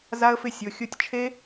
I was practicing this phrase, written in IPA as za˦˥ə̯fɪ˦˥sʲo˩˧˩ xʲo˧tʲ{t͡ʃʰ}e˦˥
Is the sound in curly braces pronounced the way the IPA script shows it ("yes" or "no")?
yes